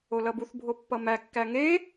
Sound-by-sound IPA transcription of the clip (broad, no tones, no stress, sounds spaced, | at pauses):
o l ʌ b u θ bʱ o pː ʌ m æ kː æ ŋ e